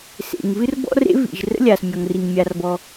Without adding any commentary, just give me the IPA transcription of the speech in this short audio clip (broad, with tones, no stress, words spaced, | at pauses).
sḛ˩ŋvɨ˥r bɔ̰˥rḛ˥vḭ˩ʒ rə̰˥lʲa˩smʲɔ˩ŋri˩ŋ mʲa˩rbɔ˩